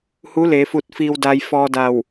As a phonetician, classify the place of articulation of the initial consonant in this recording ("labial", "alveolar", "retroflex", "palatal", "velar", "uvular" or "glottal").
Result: glottal